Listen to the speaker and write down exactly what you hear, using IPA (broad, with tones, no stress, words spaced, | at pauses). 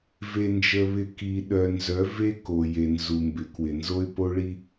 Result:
ve˨nd͡ʒə˨βɪ˨ ki˨ ɗœ˨nzœ˨˦ ve˦ ko˨je˨ nzu˨mbɪ˨˦kwɪ˨ nzo˦ɪ̯po˦ɭi˦